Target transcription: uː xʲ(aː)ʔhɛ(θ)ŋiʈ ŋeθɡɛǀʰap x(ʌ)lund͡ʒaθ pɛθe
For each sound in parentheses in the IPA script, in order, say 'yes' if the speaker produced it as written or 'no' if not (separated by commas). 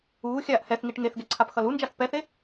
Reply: yes, yes, yes